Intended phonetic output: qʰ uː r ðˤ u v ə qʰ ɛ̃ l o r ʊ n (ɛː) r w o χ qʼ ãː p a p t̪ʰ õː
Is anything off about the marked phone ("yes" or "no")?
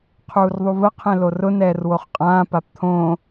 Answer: no